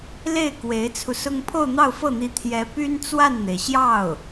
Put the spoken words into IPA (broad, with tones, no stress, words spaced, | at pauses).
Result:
le˥˩ɪ̯ kwe˧˥ɪ̯t͡sʰu˧sʊ˥ŋ pʰo˥˧ʊ̯n̪ɑ˥˧ʊ̯fɤ˥˩n̪i˧˥ t̪ʰjɛ˧˥ py˥nt͡swa˥˩nn̪e˩ɪ̯ ɕjɑ˥˩ʊ̯